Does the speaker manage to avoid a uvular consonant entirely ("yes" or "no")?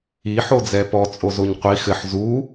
no